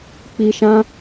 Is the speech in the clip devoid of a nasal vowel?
no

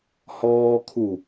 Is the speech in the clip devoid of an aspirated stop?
no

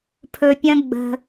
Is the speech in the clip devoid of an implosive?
yes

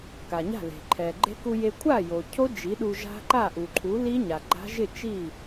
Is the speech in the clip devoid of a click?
no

